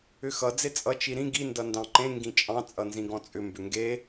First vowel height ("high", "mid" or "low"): high